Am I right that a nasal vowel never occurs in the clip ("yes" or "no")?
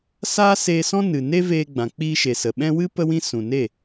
no